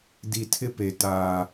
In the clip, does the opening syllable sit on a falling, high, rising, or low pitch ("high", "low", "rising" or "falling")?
low